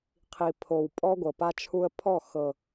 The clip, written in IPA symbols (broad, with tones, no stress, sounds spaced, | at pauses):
qʰ i˨ pʰ o˨ w pʼ ɔ˦ ɡʷ ɤ˨ p a˦ t͡ʃʰ u˦ ə̯ pʰ ɔ˦˨ x ɤ˨